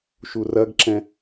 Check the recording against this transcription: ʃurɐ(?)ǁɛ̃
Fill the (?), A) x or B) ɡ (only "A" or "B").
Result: B